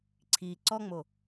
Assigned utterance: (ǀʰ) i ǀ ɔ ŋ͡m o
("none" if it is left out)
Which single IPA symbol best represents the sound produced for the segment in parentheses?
ǀʰ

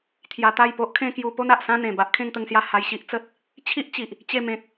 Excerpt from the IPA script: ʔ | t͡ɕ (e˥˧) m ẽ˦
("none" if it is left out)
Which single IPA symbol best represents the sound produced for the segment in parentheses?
e˥˧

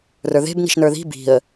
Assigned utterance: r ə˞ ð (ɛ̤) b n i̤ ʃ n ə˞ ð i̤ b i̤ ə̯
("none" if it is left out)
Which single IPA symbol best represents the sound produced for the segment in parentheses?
e̤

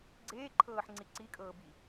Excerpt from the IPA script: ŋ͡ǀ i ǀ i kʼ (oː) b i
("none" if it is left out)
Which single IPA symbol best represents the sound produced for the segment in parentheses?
ɤː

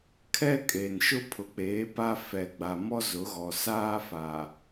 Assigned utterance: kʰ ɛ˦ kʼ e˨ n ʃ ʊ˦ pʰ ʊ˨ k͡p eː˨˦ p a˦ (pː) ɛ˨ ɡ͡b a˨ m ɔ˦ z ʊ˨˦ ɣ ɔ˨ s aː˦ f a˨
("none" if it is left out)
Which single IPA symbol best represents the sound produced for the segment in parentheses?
f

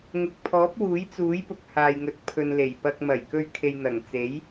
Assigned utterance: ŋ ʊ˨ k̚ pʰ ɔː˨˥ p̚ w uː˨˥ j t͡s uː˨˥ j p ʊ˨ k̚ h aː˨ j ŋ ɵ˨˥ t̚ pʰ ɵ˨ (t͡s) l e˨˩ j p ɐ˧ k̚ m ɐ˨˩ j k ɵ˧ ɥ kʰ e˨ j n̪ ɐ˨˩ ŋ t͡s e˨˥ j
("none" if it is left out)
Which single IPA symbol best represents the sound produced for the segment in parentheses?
n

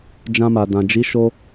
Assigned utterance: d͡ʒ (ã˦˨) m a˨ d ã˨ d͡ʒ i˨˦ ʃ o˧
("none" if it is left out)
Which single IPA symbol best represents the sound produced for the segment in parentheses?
ã˧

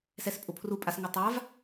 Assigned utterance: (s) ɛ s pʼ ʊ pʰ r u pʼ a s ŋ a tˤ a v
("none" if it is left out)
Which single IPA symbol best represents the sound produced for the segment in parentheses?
s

